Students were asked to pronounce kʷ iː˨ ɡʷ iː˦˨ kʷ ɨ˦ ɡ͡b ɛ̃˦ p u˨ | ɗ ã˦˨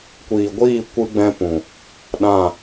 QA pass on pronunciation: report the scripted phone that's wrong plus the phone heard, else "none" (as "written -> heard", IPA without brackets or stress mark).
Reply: u˨ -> ũ˨